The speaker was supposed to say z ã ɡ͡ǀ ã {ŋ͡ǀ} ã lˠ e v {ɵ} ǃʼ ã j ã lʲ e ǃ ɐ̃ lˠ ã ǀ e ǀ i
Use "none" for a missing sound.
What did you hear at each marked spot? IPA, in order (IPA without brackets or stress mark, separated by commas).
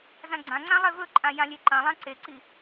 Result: ŋ͡ǀ, ɵ